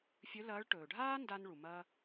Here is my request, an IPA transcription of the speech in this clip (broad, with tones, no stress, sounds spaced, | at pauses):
fʲ ɵ˧˥ l ɐː˧˥ ɭ ʈ ɵː˩ ɖʱ aː˥ n d a˧ n ɭ u˩ m ɐ˧